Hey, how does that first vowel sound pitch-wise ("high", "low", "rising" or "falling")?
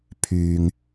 low